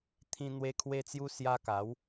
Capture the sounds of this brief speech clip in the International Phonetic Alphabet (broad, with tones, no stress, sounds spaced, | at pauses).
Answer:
t̪ʰ ĩ˧ n̪ w e˧ kʰ w e˧ t͡s j u˧ s j a˧ k a˨˦ w